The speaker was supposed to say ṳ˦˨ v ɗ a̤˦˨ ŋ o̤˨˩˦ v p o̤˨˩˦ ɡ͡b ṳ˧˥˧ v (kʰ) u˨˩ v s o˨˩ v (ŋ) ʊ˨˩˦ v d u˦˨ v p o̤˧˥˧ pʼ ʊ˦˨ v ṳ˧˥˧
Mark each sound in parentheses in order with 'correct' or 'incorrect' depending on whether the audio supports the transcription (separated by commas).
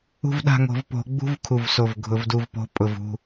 correct, incorrect